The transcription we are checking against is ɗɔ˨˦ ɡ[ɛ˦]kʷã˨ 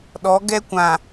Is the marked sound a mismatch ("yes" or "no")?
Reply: no